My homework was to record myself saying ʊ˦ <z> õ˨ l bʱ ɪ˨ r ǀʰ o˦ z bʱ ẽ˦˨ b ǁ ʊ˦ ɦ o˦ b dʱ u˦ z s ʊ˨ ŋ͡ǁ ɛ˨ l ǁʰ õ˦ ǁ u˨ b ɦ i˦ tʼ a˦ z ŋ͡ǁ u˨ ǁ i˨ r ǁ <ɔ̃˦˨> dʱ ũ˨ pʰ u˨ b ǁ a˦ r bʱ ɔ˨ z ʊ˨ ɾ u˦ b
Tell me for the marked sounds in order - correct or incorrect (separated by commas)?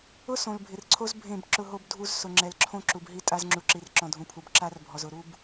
incorrect, incorrect